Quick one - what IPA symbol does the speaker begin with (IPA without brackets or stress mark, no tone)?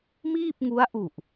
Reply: m